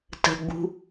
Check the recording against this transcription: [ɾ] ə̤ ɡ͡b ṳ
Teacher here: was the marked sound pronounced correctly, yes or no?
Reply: no